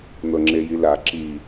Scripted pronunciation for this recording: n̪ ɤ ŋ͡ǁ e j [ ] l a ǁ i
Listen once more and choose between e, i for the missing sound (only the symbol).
i